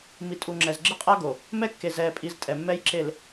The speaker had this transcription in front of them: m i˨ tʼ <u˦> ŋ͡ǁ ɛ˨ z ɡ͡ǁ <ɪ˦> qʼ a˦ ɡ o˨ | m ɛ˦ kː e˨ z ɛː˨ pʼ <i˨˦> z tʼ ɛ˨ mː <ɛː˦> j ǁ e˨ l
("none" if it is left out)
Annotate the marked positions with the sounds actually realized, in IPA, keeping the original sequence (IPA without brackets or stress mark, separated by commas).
u˨, ɪ˦, i˨˦, ɛ˦